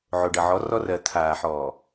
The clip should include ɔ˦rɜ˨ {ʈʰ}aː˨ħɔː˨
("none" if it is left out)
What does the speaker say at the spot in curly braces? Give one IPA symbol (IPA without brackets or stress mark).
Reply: t̪ʰ